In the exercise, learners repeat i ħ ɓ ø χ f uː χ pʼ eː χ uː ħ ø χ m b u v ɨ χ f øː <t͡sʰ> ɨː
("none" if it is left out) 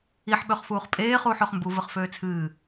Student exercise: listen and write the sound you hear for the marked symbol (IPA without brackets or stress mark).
t͡sʰ